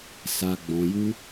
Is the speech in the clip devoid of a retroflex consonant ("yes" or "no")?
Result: yes